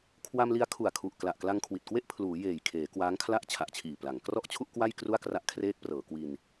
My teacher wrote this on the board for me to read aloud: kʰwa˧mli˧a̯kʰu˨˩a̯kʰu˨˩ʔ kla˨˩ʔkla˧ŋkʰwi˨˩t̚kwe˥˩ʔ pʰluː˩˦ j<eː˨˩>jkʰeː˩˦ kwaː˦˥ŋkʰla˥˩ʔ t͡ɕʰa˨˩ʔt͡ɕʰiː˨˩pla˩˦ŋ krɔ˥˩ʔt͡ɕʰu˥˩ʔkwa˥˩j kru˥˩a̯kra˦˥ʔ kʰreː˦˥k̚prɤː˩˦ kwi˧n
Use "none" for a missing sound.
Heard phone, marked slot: eː˨˩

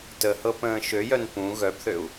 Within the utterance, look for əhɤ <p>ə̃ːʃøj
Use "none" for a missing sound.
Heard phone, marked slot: p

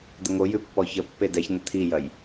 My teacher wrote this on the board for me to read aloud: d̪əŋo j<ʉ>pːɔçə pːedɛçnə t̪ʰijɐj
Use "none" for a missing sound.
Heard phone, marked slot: ʉ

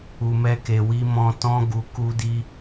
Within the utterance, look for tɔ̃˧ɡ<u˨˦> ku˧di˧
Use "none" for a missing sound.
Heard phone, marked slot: u˨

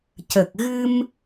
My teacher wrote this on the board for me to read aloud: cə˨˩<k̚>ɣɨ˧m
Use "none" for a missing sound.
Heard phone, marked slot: k̚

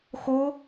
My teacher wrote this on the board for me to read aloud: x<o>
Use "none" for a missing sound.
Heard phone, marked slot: o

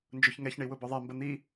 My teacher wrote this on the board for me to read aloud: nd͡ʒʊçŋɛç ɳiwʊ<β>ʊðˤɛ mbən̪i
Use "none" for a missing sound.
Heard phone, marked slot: b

